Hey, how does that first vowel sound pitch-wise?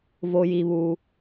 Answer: low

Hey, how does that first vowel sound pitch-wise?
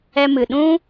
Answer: high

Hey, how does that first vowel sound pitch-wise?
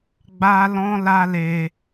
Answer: high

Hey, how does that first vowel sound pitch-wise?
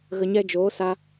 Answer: low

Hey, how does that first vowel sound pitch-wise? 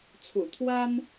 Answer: low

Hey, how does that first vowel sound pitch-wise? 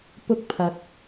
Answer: high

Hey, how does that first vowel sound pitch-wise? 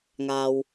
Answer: low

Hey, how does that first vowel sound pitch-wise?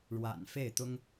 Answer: low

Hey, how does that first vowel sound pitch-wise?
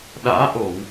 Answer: rising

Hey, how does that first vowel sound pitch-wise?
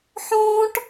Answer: high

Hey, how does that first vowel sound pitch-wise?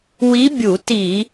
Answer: rising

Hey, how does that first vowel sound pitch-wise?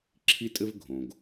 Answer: high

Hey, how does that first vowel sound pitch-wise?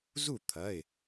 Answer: falling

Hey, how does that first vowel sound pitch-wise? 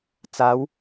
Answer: rising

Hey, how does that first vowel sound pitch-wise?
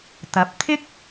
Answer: rising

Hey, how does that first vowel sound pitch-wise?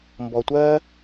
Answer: low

